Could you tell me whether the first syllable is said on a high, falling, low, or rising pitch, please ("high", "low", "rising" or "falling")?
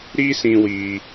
high